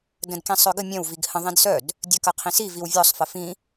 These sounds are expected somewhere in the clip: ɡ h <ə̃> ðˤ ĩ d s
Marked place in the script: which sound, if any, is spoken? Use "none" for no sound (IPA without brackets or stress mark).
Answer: ə̃